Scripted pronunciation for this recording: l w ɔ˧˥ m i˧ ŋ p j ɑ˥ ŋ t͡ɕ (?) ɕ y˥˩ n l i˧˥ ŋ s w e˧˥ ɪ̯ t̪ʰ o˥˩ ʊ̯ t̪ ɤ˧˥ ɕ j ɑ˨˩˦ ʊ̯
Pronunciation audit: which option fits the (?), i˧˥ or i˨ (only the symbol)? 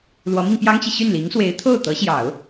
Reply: i˨